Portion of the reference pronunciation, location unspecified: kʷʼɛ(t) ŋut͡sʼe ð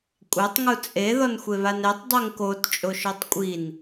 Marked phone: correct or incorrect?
incorrect